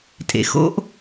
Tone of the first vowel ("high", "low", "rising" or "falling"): low